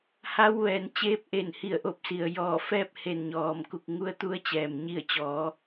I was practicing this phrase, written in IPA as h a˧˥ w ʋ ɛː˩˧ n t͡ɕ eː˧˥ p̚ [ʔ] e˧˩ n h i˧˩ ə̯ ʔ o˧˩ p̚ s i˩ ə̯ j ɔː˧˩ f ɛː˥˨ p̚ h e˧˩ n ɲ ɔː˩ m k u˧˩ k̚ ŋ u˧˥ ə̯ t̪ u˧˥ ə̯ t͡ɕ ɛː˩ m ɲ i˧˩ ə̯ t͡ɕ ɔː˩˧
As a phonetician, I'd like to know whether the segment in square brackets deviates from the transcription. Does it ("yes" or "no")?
no